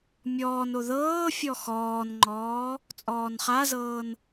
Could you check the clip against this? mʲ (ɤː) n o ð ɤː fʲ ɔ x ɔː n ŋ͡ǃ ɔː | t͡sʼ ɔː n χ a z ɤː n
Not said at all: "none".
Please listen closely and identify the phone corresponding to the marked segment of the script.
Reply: ɔː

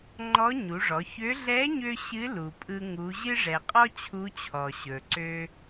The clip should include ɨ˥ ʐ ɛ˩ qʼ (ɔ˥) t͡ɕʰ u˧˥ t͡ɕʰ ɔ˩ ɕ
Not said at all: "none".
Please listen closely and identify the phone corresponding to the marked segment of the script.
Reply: ɔ˥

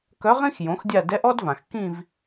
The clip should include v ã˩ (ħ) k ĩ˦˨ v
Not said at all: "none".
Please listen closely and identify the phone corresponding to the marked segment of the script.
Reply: x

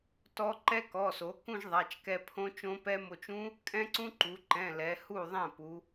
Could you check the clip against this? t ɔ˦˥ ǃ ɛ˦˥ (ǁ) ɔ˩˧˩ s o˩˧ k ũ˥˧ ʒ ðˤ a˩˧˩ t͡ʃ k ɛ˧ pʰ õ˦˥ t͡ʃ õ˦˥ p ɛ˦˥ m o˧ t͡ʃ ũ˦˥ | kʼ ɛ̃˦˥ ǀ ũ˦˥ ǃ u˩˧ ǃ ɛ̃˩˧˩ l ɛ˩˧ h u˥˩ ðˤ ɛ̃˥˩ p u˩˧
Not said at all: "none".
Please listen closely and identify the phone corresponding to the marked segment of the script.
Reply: k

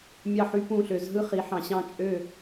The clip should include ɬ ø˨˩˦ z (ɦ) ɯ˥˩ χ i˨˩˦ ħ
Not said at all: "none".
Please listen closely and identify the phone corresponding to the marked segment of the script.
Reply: ɦ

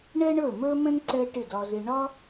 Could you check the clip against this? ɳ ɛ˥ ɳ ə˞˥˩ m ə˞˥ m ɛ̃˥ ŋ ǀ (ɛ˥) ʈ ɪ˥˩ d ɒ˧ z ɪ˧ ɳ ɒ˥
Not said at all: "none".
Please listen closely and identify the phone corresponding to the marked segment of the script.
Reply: ɛ˥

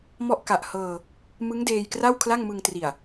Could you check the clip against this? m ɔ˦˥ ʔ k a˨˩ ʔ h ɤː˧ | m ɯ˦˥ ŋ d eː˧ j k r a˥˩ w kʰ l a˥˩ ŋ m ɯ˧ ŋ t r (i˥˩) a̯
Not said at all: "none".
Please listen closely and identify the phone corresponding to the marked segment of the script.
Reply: i˨˩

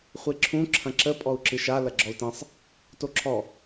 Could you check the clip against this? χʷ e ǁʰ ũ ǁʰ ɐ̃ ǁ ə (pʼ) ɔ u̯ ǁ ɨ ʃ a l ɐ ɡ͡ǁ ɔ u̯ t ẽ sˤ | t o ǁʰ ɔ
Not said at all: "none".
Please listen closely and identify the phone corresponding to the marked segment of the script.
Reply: pʼ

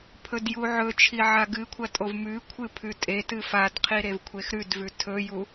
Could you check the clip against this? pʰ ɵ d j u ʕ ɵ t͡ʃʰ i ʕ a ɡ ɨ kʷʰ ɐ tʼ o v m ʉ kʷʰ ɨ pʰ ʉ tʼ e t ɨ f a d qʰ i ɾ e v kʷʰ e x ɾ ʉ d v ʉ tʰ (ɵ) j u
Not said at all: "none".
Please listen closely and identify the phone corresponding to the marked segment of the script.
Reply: ɵ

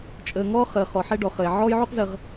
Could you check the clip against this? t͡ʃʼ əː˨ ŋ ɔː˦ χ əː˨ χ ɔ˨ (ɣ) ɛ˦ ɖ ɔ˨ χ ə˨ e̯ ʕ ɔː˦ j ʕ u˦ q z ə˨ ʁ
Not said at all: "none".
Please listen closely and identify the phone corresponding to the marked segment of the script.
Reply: ħ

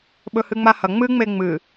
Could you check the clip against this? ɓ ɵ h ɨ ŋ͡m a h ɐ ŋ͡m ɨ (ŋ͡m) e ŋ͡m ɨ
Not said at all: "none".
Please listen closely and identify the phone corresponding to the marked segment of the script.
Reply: ŋ͡m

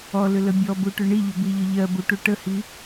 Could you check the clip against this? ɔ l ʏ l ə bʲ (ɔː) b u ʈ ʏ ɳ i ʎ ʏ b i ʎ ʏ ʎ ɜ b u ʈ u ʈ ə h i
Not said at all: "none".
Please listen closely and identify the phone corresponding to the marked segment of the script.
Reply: ɔ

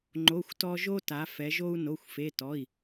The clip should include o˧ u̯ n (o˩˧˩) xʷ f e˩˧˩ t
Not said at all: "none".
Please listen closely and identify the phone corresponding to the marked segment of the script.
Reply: o˩˧˩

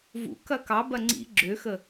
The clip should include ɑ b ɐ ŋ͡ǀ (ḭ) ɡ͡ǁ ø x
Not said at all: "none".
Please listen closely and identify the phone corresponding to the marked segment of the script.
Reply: ḭ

